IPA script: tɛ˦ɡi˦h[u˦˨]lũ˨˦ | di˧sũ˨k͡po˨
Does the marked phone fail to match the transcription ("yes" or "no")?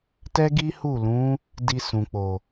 no